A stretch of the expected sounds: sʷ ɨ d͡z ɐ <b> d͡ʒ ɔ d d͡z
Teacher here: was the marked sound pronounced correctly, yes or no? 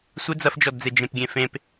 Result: no